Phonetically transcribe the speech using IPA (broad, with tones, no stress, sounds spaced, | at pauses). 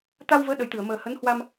t̪ a˧ w v əː˨˦ ɗ ə˨˩ j t̪ ɨ˧˩ ə̯ m əː˨˩ h ə˨˦ n h w a˧ m